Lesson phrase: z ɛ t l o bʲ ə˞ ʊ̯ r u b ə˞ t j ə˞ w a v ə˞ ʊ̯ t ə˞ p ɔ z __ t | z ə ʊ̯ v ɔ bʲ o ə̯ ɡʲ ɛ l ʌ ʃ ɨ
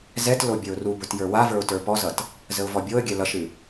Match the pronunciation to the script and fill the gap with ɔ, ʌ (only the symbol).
ʌ